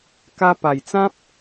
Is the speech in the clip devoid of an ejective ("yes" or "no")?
yes